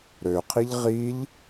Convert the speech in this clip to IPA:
ɾ ø qʰ i ʎ ʁ i ʎ

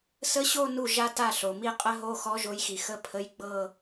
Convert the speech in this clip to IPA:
s ə˧˥˧ ɕ o˥˧ n u˥˩ ʒ a˥˧ t a˥˩ ɬ o˩ m i˥˧ qʼ ə˦˥ ɦ o˧˥˧ x ɔ˦˥ ʒ o˨˥ j x i˩ x ə˧˥˧ pʰ ə˧˥˧ j ɡ͡b ɤ˥˧

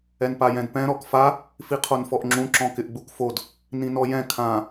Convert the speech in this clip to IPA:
ɛ n p a j ɛ̃ d p ɛ̃ ɾ ɔ k f a | f i qʰ o n f ɔ ʔ ŋ͡ǁ ũ ǁ ɔ̃ k ɪ ʔ ɡ͡b u k f o d | n ĩ n ɔ j ɛ̃ kʰ ã

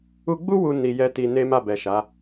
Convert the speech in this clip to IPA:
u˦ ɡ͡b u˦ w u˧ n i˧ j ɛ˦ t i˧ n e˦ m a˦˨ b ɛ˨ ʃ a˨˦

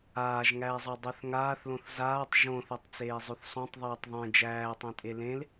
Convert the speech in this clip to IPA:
aː ʒ ŋ æː zˤ a dˤ ɛ θ ŋ aː θ l õ θ z aː tˤ ʒ õ θ o tˤ t͡s eː zˤ ø θ sˤ õ tˤ ðˤ eː tˤ ðˤ ẽ d͡ʒ æː tˤ ẽ tʼ e l ẽ l

